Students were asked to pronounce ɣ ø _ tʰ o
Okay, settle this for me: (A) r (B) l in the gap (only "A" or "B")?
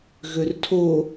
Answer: A